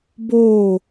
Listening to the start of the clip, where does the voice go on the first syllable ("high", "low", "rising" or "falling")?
falling